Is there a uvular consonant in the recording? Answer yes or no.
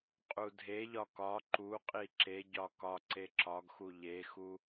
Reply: yes